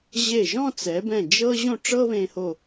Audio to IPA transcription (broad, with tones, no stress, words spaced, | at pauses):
ʑe˧˩ʒɔ̃˥˧ t͡sɛ˩˧bɛ̃˧˩ d͡ʒɤ˥ ʑõ˥˧ʈ͡ʂɤ˥βẽ˧ho˧˩